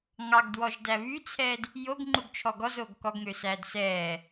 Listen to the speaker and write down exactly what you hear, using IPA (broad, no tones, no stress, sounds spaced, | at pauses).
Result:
ŋ ɑ ɡ d w ɔ ʒ d æ β y t͡sʰ ɛː d | j o ɡ ŋ͡ǃ u ɡ t͡ʃʰ ɔ ɡ ɔ z oː ɡ k ɔ ɡ ŋ ø s æː d s ɛː